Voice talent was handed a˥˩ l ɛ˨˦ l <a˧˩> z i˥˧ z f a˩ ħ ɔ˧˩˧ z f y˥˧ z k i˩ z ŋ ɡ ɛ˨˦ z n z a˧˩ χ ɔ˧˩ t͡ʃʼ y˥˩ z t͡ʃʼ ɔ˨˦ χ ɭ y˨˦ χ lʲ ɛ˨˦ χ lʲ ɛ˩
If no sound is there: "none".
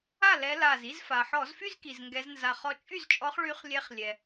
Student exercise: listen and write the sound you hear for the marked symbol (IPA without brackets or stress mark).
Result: a˧˩